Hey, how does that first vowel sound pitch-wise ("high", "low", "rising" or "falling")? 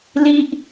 high